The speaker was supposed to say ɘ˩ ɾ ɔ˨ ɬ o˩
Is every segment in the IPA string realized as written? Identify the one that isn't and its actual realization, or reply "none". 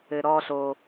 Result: none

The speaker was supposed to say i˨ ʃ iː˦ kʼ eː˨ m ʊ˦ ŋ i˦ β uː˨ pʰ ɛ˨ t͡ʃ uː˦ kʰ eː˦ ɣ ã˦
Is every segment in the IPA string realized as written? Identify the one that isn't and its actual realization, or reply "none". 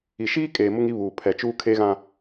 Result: none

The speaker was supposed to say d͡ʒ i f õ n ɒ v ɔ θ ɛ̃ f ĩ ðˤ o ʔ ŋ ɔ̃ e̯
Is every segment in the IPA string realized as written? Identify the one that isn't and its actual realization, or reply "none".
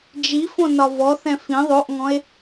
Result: none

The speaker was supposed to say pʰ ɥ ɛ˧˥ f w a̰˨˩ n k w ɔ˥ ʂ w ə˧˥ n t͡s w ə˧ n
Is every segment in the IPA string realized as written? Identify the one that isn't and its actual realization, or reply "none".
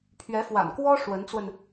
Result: none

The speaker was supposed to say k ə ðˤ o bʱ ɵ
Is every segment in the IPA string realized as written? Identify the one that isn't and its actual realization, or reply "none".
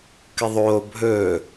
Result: none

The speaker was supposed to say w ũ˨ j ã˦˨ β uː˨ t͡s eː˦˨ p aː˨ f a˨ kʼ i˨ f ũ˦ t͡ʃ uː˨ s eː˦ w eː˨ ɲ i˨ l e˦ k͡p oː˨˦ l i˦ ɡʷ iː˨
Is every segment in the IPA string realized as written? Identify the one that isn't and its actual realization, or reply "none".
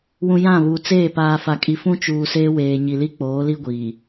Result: e˦ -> i˦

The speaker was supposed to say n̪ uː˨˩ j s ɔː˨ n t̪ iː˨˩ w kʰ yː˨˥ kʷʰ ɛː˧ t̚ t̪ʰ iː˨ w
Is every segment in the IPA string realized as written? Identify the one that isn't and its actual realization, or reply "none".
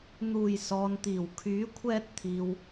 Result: none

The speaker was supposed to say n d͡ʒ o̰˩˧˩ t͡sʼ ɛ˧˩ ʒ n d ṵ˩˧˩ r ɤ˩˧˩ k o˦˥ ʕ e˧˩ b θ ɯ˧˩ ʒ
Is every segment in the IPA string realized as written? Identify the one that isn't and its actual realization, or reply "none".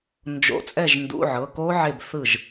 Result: r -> ʕ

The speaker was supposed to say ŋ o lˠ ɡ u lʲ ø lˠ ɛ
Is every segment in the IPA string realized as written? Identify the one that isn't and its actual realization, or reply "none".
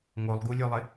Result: ɛ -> ɪ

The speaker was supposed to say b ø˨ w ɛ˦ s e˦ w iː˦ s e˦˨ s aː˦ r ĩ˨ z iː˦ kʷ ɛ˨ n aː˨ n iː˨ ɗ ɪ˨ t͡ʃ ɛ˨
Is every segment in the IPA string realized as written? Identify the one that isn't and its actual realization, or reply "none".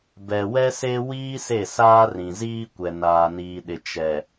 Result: ø˨ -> ɛ˨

